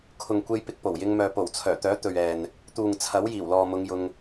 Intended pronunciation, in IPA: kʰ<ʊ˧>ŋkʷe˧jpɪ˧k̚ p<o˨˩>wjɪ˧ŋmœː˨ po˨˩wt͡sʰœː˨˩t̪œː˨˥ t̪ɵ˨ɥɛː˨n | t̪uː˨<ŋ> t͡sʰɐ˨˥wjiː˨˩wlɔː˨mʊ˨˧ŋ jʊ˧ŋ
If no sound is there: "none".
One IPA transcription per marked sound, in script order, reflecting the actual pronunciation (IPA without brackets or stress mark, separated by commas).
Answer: ʊ˨, o˨˩, ŋ